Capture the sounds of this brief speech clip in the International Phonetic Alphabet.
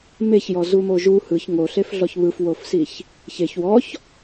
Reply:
m e ç j ɔ z u m o ʒ u h ɯ ç ŋ o ɬ e f ɮ ɔ ç β ɯ f w o f s i ç | ç e ç w ɔ ç

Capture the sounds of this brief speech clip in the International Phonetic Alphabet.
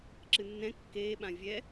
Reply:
ǁ ɨ nː ɛ̃ kː eː ɓ ã vʲ ɛ

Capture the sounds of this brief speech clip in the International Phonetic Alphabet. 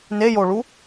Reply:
n e j o ɭ u

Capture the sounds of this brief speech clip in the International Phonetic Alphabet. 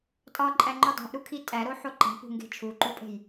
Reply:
tʼ ɒ ǃʼ æ ŋ͡ǃ u dˤ o̤ ʔ ɾ u kʰ i tʼ æ ɾ o ħ o ǃ æ̤ p ṳ ŋ ɡ e̤ t͡ʃʰ u ǃ u pʼ e̤ j

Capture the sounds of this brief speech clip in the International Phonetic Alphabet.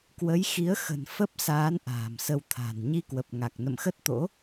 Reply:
k w ə˨˦ j x i˨˦ ə̯ x ə̤˨˩ n f ə˦˥ p̚ s aː˨˦ n ʔ a̤ː˨˩ m s ə˧ w t̪ʰ a̤˨˩ n ɲ i˧ k w ə˨˩ p̚ ŋ a˨˩ k̚ n ə̰˧˨ m x ə˦˥ t̚ t̪ o̰˧˥

